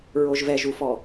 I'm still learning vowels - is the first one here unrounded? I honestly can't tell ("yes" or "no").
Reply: no